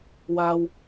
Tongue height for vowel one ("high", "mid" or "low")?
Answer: low